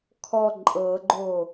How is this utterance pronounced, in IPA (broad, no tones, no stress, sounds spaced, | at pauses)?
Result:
kʰ ɔ ǃʼ ɤ ɡ͡ǃ o